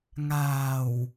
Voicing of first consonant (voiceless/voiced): voiced